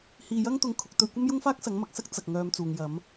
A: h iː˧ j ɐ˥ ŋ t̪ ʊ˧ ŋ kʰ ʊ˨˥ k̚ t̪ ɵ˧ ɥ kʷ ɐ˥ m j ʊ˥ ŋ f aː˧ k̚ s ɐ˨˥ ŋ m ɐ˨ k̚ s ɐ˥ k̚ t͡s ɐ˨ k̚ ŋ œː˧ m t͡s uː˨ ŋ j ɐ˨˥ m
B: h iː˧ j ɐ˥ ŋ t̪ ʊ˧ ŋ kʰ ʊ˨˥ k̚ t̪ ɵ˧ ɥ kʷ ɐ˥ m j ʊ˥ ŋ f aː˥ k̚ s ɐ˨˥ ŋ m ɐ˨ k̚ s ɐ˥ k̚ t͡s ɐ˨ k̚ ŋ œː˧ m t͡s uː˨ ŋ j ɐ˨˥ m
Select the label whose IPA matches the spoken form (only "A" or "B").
B